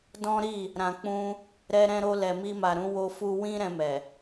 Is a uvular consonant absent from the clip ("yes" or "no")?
yes